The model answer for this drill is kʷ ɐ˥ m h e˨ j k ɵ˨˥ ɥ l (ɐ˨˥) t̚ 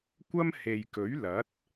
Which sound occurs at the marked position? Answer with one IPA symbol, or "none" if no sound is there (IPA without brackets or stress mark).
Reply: ɐ˨˥